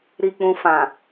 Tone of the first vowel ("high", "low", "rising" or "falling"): low